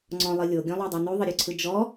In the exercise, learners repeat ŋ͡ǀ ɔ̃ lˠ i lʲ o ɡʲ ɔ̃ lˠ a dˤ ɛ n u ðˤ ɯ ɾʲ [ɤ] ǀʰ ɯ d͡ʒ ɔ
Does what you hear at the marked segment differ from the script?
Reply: yes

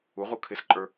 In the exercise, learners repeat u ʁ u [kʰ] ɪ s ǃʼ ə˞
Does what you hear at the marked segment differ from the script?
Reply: no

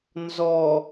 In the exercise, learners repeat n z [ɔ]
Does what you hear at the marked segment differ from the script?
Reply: no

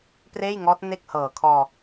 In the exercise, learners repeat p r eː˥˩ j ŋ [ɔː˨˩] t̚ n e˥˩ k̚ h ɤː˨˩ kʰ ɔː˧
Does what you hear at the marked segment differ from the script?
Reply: yes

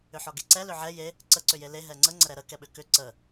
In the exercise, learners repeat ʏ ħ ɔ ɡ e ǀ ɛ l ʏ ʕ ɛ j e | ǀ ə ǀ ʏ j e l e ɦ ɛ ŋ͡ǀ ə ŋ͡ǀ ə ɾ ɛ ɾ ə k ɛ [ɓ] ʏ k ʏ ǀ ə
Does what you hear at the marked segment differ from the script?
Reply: no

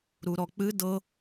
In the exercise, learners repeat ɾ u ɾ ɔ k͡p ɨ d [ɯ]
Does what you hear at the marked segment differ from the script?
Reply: yes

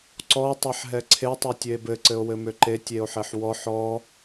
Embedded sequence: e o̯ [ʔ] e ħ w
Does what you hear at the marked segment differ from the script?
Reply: yes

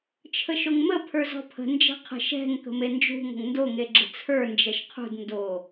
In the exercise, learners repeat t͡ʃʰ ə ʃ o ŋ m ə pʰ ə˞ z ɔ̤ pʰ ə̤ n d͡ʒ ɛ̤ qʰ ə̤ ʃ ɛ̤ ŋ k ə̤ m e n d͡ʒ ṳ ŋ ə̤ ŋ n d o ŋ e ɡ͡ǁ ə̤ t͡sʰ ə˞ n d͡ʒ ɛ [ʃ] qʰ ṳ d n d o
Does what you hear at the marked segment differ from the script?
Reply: no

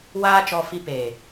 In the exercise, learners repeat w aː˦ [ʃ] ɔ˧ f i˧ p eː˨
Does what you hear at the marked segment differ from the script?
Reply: yes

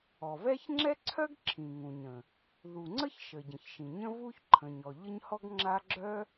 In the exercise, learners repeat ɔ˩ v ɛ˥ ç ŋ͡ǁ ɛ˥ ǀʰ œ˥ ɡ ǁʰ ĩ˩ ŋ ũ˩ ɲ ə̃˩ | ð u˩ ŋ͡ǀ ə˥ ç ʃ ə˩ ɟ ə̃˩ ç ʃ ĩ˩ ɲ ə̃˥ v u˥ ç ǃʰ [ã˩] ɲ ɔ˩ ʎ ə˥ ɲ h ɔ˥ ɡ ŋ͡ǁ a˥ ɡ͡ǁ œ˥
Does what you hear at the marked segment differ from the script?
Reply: yes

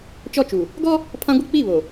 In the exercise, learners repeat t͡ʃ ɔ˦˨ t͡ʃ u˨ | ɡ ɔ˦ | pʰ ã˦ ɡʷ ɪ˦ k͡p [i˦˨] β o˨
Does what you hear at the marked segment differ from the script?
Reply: no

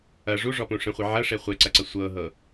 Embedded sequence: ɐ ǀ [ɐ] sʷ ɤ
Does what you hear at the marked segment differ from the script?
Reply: no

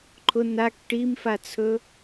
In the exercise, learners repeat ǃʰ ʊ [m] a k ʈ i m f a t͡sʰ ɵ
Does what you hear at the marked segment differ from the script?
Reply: yes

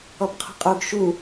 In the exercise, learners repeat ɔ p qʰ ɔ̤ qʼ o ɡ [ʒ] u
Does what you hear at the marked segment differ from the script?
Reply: yes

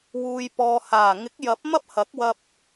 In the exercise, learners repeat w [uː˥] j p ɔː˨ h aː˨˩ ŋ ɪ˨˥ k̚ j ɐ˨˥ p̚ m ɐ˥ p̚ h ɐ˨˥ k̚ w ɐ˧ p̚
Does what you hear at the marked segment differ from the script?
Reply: yes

